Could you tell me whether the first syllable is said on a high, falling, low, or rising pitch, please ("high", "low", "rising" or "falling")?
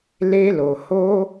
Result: high